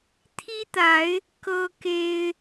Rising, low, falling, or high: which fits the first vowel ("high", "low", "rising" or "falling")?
high